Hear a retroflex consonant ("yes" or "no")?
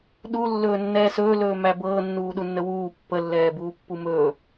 no